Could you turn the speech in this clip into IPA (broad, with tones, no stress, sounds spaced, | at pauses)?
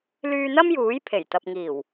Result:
l yː˧ n̪ ɐ˥ m j uː˨˥ j pʰ e˨˩ j t̪ ɐ˨ p̚ ŋ iː˨˩ w